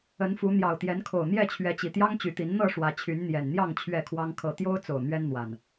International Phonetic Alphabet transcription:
ə˨˦nfu˨˦ n̪jɑ˨˩ʊ̯t̪jɛ˨˦nkʰo˨˩ʊ̯n̪jɛ˥˨ t͡ɕʰɥɛ˨˦t͡ɕi˨˩ t̪jɑ˦ŋt͡ɕy˨˦t̪i˨˦n n̪ɤ˥˨ ʂwä˨˦t͡ɕʰy˨˦nn̪jɛ˨˩nn̪jɑ˥˨ŋ t͡ɕʰɥɛ˥˨kʰwɑ˦ŋ kʰɤ˥˨ t̪jo˦ʊ̯t͡so˨˩ʊ̯ n̪ɥɛ˦nn̪wa˨˩n

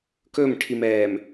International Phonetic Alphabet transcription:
kɵmʈʰimɛːm

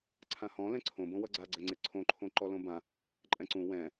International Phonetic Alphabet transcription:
ǀʰãhɔ̃ lɛ̃ǀʰõbõwʌ ɡ͡ǀaɡ͡ǀɛŋ͡ǀe ǀʰõǃʰõ ǃɔlõbã | ǃʼɛ̃ǀũ wɛ̃

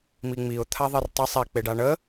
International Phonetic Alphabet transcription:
miŋ͡miʊ̯ t̪ʰaðˤertˤɛ sˤɛ k͡peɖaɳə

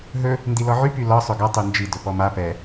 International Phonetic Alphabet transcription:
ɦɵ | ndilɔʕy pylɒ sˤɵɡɒ tˤynd͡ʒi dɵpɔma pɛ

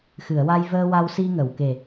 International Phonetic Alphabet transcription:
xɨ˨˩˨ə̯wa˧j vəː˧ wa˧wsi˧ŋə˨˩˨wke˨˩

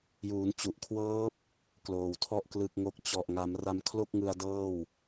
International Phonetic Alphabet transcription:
juː˩˦nt͡ɕu˨˩ʔkʰwɤː˦˥p̚ | kloː˨˩wtʰɔ˥˩ʔ klɯ˥˩k̚ŋo˥˩k̚ t͡ɕɔ˨˩ʔŋa˩˦m ra˧mkʰlo˥˩k̚ŋɯ˧a̯dɤː˥˩w

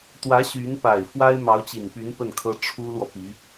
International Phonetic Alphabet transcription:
t̪wä˧˥ ɕy˧˥n pa˨˩ɪ̯ fwa˥ɪ̯mɑ˧˥ʊ̯t͡ɕi˨˩npy˧˥n pə˥˩nkʰɤ˥ ʈ͡ʂʰu˥lwɔ˨pi˧˥

